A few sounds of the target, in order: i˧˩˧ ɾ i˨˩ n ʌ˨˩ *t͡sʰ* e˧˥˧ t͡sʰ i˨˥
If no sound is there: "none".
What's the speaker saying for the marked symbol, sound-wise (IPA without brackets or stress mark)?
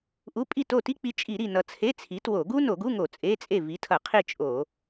t͡sʰ